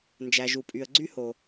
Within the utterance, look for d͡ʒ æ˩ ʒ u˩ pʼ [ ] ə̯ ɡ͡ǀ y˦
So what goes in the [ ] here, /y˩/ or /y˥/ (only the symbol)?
y˩